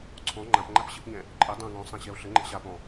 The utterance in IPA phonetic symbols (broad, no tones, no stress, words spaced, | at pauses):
ǀʰɔ̃ ŋ͡ǃãp ŋ͡ǃapɕɘpɲɛ̃ | ǃʼɘ dˤã ŋɔ̃sˤã ɕɛo̯ɬɘŋ͡ǃɛ̰ ɕa pɔ̃